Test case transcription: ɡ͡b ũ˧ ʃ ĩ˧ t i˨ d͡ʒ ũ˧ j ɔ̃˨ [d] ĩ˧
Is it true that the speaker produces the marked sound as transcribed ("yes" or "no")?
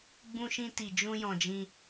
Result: no